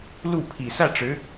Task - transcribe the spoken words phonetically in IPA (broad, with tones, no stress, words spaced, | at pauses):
lu˥˩pʰi˨˩ sä˥˩ʈ͡ʂɻ̩˧˥